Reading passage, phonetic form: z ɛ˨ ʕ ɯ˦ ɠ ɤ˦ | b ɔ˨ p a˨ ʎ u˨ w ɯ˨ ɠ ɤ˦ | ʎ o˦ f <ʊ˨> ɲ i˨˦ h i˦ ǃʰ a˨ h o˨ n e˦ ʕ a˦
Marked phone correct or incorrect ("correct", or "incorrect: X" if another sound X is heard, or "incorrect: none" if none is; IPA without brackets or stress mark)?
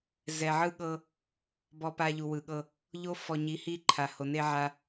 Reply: incorrect: ɔ˨